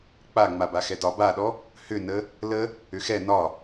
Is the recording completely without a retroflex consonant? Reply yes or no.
yes